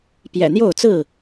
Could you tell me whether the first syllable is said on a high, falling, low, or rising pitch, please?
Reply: low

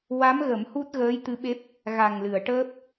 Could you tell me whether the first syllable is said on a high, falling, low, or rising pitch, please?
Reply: rising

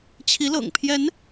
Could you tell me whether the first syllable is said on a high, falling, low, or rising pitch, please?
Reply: rising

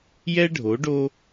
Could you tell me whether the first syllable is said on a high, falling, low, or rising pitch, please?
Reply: high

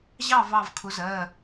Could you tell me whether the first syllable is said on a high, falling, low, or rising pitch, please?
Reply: falling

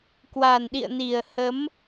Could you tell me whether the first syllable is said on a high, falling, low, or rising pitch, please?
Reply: low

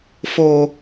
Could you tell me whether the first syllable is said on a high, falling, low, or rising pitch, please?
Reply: low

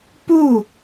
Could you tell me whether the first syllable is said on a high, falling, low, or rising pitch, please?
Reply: falling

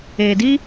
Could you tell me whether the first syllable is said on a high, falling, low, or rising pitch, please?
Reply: low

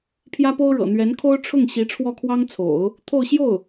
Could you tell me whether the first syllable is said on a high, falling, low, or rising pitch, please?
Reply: high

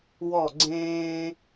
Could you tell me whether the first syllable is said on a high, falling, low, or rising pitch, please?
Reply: falling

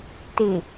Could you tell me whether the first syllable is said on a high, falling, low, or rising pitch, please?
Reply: low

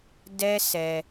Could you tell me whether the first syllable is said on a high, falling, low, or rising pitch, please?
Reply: high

